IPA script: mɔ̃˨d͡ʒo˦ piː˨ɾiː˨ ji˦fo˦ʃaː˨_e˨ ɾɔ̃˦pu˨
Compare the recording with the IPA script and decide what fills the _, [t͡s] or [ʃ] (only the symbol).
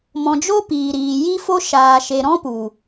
ʃ